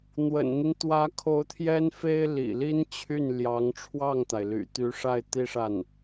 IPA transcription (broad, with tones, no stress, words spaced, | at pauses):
n̪wə̰˨˩nn̪i˦n t̪wä˧˥kʰo˧˥ʊ̯ t̪ʰjɛ˥nfe˥ɪ̯ lḭ˨˩li˥nt͡ɕʰy˥˩nljɑ˧˥ŋ ʈ͡ʂʰwɑ˥˩ŋt̪a˩ɪ̯ly̰˨˩ t̪y˧˥ʂa˥˩ɪ̯ t̪i˥ʂa˥˩n